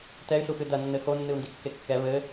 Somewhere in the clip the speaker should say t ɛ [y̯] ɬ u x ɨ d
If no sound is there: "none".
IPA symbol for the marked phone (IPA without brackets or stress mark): y̯